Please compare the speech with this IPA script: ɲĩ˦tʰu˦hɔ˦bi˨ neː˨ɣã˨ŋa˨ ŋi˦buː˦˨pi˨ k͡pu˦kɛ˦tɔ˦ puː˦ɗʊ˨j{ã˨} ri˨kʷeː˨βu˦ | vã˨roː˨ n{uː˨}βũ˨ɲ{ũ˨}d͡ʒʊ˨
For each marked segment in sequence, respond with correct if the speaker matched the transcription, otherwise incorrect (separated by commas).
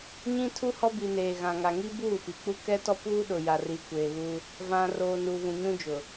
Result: incorrect, correct, incorrect